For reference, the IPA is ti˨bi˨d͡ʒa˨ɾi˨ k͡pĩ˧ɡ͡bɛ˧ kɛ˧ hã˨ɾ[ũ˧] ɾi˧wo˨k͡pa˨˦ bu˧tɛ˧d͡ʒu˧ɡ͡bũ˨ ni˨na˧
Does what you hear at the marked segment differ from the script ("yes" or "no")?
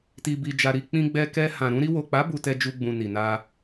no